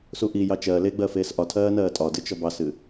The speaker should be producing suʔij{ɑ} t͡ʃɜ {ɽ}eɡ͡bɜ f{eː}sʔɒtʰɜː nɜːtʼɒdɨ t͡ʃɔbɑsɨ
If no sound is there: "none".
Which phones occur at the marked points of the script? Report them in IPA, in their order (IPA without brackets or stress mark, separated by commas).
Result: ɑ, l, eː